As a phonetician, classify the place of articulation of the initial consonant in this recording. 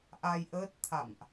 glottal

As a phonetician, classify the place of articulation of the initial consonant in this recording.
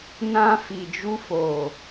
alveolar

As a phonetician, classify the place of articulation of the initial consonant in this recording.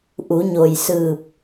glottal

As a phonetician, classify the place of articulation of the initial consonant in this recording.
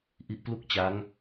glottal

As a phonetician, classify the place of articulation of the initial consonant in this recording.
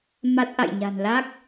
labial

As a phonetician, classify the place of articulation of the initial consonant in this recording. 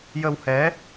palatal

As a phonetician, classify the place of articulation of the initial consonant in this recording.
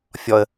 labial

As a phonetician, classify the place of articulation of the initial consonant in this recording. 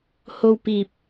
glottal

